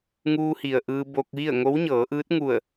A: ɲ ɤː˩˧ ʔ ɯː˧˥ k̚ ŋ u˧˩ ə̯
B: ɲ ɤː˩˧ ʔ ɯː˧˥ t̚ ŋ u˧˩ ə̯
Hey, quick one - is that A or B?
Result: B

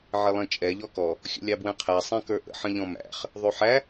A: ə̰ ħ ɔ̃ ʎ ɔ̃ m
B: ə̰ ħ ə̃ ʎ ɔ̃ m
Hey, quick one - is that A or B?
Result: B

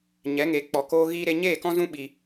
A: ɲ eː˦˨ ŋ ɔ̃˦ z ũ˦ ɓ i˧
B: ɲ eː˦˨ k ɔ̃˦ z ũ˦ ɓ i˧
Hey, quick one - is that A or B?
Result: B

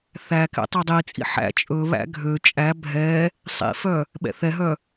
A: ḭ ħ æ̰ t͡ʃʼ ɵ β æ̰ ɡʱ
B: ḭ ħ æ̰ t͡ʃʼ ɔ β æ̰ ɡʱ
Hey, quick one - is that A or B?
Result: A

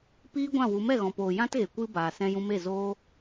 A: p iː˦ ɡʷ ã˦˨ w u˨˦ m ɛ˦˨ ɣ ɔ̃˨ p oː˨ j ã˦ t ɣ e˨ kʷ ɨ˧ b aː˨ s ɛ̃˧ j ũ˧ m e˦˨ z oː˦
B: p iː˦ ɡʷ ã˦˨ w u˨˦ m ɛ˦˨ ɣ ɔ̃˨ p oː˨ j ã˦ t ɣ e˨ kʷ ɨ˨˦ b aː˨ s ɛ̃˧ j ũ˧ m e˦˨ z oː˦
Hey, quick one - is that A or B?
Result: A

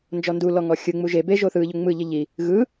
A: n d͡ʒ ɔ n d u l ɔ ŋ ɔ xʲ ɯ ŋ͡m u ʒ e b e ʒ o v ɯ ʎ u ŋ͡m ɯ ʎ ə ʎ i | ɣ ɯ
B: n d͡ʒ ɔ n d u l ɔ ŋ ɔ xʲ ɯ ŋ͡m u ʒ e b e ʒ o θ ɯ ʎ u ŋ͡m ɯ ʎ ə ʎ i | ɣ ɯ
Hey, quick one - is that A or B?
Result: B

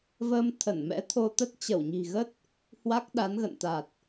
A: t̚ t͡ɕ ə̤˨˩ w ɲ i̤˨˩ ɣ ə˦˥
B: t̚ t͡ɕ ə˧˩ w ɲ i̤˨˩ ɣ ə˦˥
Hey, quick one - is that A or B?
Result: B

